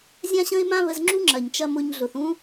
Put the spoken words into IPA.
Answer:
zʲ ã˦ ɕ ə̃˦ ɪ̯ m ã˦ β ə˧ z ŋ͡ǁ u˦ ŋ͡ǁ ɐ˨ ɲ t͡ʃ ɐ˧ m ʊ˧ ɲ ɮ ʊ˨ θ ũ˦

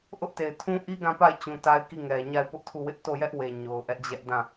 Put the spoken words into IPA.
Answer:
ʔ ʊ˦ ʔ t e˨ ɪ̯ tʰ ũ˦ ʔ i˦ ɡ ã˦˨ p a˦˨ ɪ̯ t͡ɕ ũ˨ t a˦ ɪ̯ k i˦˨ ŋ ɛ˨ ɲ a˦˨ ɪ̯ p ʊ˦ ʔ tʰ u˦˨ w ɪ˦ ʔ t o˦˨ j ɛ˦ ʔ w e˨ ɲ o˨ ʊ̯ ʔ ɛ˦ ʔ d͡ʑ ɛ˦ ʔ d ã˦˨

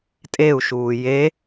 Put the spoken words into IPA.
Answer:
tʼ e u̯ ʃ uː j e

